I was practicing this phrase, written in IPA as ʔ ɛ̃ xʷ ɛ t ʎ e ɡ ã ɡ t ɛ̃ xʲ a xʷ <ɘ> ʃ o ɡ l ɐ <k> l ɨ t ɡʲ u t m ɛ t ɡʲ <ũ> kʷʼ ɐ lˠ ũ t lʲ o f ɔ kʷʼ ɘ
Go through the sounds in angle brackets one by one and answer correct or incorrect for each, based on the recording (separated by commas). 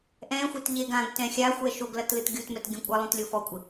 incorrect, incorrect, correct